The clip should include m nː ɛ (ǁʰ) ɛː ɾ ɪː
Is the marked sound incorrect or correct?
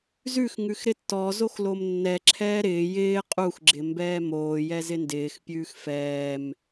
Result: correct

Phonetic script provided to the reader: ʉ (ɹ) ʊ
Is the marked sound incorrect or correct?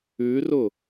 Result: incorrect: r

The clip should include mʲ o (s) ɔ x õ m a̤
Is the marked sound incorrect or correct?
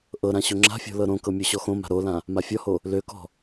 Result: incorrect: ɕ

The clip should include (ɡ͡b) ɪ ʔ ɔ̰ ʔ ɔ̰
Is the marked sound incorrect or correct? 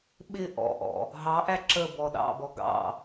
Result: incorrect: ɓ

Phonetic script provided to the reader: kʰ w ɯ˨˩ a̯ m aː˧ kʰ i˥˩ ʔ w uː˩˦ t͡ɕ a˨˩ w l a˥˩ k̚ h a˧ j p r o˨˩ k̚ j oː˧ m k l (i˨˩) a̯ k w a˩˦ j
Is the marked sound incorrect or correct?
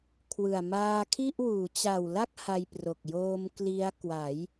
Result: incorrect: i˦˥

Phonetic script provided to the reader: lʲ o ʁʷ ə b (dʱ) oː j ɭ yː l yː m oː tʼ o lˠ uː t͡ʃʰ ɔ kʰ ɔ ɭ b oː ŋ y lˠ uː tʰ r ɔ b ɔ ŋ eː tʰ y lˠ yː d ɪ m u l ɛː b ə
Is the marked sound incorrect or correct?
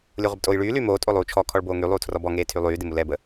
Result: incorrect: tʼ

